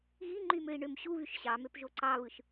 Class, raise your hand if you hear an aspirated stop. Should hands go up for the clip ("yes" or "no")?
no